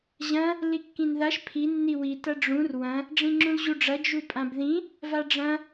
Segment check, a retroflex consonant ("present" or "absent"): present